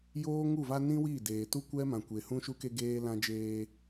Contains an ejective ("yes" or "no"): no